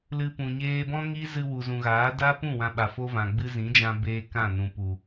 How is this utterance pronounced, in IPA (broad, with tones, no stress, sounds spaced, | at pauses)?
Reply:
l ɨ˧ p ũ˨ ɲ eː˦ b ɔ̃˦ ŋ i˦ z ɨ˧ w u˨ z ũ˨ ɣ aː˨˦ d a˦ p ũ˦˨ w ã˧ ɓ a˨ f o˦ v ã˨ ɡ͡b ɨ˧ z ĩ˨˦ d͡ʒ ã˧ b eː˦ k ã˦˨ n ũ˨ p u˨